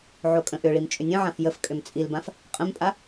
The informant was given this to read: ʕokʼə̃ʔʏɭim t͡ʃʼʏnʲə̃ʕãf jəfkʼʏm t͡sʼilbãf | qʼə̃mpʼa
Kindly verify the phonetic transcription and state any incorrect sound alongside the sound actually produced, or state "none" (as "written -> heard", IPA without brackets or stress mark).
none